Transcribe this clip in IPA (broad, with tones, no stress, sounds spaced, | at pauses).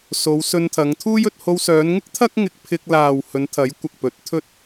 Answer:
s o˨˧ w s ɵ˧ n t̪ʰ ɐ˨˧ ŋ t̪ʰ uː˥ j ɵ˨˥ t̚ h o˧ w s œː˨˧ n ŋ ɪ˥ k̚ t̪ʰ ɐ˥ k̚ ŋ ɪ˧ k̚ pʰ ɪ˧ k̚ l aː˨ w h ɵ˨˧ n t̪ʰ ɐ˨˥ j kʷ ɐ˨ k̚ p ɵ˨˥ t̚ t̪ʰ ɵ˥ t̚